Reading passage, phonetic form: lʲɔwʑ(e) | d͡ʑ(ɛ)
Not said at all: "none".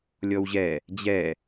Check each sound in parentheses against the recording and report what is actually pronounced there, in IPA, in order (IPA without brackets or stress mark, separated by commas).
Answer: ɛ, ɛ